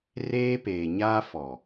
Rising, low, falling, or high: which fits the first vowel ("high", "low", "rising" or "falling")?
high